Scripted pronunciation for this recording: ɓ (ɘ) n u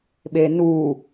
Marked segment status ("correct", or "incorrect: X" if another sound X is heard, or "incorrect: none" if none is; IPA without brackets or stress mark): incorrect: e